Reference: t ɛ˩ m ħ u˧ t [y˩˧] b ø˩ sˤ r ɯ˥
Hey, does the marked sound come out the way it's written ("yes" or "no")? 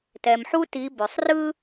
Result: no